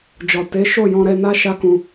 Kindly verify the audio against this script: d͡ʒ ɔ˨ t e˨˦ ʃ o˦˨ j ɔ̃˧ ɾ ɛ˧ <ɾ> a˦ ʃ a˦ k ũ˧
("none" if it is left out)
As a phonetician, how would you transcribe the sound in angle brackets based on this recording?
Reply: n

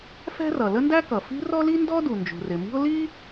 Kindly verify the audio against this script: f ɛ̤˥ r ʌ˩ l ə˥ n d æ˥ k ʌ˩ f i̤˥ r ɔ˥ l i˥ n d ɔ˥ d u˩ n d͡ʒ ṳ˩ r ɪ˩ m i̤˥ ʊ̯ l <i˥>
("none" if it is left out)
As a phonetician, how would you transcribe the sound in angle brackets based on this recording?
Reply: i˥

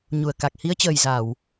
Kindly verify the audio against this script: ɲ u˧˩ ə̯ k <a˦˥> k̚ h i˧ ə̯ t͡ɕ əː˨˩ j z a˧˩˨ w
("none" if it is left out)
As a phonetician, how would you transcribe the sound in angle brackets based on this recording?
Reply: a˨˩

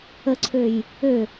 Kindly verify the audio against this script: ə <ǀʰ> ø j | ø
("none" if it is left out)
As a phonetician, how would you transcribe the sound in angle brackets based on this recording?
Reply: ǀʰ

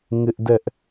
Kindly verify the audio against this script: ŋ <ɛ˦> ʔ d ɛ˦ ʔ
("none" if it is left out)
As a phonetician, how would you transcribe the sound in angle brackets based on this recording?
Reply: ɪ˦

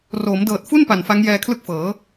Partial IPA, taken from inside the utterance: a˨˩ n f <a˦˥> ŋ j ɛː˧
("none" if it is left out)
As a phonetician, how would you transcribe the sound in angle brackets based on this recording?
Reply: a˦˥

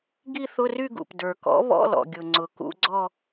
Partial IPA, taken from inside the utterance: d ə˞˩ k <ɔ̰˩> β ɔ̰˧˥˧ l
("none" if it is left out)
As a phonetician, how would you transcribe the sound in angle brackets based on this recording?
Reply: ɔ̰˩˥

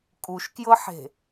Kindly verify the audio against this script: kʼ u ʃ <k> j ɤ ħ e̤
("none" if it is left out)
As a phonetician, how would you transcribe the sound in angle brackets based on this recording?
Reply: k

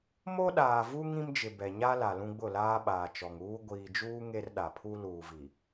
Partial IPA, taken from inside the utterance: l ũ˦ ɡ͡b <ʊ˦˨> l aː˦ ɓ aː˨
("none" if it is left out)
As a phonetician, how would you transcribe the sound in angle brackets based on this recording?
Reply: ʊ˦˨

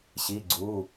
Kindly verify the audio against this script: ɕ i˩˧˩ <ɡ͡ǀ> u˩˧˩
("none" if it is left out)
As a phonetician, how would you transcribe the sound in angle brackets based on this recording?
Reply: ɡ͡ǀ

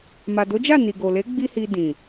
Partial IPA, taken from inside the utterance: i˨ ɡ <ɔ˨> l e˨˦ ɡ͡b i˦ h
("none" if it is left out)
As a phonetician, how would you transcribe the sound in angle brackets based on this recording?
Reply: o˨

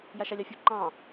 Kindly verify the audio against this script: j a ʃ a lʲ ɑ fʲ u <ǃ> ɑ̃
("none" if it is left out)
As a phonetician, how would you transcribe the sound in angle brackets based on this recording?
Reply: ǃ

